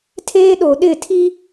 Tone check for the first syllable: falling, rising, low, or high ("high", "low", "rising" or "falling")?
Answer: high